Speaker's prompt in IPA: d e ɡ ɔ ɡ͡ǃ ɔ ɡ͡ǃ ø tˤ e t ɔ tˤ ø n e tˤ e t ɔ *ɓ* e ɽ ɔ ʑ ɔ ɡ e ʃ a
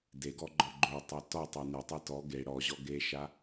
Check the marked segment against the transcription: incorrect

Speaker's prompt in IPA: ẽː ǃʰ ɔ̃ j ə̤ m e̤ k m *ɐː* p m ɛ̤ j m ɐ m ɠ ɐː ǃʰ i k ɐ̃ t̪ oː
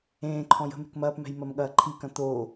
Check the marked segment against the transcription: correct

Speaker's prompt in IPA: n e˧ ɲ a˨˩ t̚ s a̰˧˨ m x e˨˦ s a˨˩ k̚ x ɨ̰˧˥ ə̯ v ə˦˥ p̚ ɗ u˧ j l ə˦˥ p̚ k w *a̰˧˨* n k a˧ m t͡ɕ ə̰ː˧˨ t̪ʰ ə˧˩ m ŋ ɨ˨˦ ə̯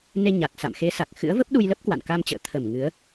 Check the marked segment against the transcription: correct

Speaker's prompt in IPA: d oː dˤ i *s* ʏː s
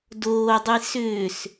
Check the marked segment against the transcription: correct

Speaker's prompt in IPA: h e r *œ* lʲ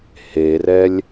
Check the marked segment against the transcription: incorrect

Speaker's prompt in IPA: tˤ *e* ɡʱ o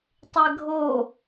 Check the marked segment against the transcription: correct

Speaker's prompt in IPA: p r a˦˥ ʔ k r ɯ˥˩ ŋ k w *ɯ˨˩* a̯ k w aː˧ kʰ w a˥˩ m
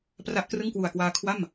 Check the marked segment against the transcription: incorrect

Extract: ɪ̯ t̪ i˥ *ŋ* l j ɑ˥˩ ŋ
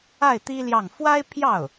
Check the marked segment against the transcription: incorrect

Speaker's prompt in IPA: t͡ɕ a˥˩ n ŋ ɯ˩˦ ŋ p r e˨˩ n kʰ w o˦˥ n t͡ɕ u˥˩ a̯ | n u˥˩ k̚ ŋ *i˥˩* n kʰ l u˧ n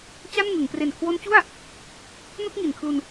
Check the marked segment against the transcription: incorrect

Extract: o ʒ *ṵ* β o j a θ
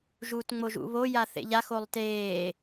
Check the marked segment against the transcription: correct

